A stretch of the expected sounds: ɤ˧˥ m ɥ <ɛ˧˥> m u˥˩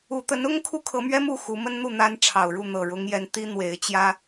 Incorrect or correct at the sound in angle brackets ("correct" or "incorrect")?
incorrect